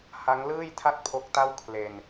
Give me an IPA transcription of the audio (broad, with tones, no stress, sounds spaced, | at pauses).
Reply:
h a˦˥ ŋ l ɯː˥˩ j tʰ a˥˩ t̚ pʰ o˦˥ k̚ t a˥˩ w kʰ l e˧ n